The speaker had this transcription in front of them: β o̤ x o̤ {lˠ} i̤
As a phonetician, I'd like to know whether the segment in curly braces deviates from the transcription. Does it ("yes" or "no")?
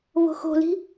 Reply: yes